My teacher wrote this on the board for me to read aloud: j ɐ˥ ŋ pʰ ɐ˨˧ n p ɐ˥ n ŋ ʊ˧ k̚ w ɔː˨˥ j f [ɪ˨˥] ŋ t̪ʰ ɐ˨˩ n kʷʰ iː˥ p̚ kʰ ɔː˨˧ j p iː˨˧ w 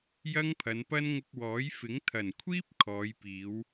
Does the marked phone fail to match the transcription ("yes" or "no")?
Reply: no